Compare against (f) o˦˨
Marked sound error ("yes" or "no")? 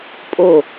yes